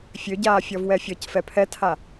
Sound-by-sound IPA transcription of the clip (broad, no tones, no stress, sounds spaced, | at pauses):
fʲ ø ɟ aː fʲ ɔ v w ɛ fʲ ɔ c f ɛ pʰ ɛ tʰ a